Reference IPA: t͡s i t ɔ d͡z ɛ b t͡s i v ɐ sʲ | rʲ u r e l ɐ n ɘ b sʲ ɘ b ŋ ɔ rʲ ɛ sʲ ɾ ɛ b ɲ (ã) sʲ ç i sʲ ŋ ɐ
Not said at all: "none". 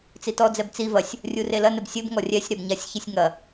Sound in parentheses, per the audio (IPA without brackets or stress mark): a